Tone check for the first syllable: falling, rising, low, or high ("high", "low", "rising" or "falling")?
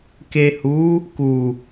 low